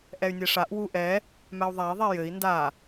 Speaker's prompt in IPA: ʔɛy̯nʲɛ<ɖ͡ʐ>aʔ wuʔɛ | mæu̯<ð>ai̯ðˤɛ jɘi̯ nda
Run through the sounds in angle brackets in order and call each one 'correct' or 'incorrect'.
incorrect, incorrect

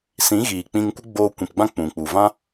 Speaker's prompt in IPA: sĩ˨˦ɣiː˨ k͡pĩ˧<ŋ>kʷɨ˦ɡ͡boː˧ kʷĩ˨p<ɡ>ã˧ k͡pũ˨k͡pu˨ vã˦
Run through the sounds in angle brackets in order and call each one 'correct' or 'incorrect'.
correct, incorrect

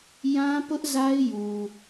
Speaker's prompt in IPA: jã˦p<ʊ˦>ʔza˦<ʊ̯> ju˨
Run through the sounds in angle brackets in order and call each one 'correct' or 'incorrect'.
correct, incorrect

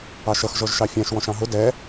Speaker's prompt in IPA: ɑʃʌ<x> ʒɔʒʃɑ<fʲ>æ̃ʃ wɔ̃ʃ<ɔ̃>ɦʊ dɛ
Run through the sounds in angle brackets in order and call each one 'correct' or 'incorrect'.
correct, correct, incorrect

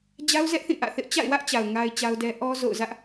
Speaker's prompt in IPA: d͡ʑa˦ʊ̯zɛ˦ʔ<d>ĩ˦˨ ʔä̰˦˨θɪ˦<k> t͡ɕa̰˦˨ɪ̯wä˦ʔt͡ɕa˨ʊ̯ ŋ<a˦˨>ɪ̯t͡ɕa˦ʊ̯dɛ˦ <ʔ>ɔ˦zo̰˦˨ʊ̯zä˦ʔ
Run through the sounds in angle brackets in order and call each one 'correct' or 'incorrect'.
incorrect, incorrect, incorrect, correct

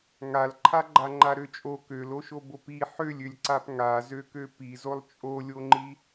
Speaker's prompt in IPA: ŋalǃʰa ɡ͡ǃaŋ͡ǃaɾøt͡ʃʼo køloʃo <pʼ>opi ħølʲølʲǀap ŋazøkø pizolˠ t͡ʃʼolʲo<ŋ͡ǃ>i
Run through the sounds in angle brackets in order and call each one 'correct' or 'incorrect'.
incorrect, correct

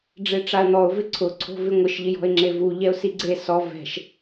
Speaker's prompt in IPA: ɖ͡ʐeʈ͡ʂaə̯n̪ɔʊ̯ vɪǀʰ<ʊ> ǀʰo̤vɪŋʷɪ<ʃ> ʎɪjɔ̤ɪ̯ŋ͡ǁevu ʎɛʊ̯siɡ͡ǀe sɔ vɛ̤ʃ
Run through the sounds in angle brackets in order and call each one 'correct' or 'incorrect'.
correct, correct

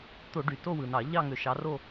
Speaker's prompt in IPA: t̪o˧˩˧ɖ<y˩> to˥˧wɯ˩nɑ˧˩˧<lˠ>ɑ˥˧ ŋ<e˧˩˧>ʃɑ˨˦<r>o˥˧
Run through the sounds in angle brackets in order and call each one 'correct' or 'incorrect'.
correct, incorrect, incorrect, correct

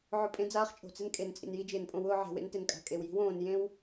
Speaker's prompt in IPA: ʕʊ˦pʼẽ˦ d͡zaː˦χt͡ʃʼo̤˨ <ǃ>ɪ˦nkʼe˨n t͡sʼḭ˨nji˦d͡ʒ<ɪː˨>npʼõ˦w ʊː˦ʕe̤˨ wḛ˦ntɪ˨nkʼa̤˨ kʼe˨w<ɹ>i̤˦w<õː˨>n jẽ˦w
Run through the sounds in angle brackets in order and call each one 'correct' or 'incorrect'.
incorrect, correct, incorrect, correct

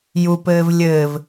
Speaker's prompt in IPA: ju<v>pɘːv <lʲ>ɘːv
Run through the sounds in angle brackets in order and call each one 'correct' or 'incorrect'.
incorrect, correct

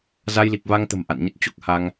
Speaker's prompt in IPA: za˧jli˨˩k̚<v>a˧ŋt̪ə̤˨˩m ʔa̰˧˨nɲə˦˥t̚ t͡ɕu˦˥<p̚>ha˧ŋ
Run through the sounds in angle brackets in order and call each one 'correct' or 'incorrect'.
correct, incorrect

